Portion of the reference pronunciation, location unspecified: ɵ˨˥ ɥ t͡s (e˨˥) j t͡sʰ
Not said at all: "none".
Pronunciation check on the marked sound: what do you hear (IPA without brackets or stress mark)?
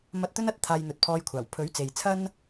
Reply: e˨